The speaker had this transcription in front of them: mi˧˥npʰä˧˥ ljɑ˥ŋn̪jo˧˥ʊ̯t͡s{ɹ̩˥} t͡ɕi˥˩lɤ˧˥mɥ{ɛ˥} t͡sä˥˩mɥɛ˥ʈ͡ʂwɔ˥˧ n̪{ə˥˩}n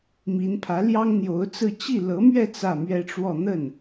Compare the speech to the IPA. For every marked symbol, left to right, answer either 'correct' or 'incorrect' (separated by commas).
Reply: incorrect, incorrect, correct